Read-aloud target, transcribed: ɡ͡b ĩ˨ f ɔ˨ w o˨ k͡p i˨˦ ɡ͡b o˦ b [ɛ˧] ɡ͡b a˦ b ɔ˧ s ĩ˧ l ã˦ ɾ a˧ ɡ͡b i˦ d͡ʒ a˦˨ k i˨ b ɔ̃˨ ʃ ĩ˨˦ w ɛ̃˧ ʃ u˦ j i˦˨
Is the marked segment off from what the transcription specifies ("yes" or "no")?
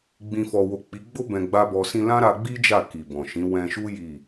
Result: yes